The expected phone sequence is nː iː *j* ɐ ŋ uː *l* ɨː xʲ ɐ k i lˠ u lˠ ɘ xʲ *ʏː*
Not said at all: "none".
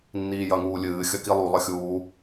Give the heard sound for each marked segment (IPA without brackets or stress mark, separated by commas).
j, lʲ, uː